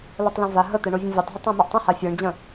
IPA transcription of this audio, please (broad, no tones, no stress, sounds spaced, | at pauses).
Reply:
l ɤ tˤ l ɛ̃ v a ɦ ə t̪ ɛ ɳ o vʲ ə̃ vʲ ə tˤ ɦ ə tˤ ɛ̃ m ɛ ʔ tˤ ə̃ h a fʲ ɤ ɳ d͡ʑ ə̃